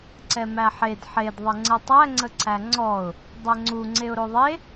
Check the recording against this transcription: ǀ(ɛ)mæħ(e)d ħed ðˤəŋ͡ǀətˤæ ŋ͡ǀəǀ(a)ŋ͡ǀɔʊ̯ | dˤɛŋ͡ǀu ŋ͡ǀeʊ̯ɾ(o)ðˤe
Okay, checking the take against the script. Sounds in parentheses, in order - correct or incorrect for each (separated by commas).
correct, correct, incorrect, correct